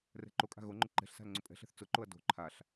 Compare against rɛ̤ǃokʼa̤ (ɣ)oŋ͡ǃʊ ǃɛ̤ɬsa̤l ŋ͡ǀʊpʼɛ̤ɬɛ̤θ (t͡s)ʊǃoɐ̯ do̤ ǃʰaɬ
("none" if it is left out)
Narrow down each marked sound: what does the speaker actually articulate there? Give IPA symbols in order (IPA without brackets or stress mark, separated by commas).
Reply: ɣ, t͡s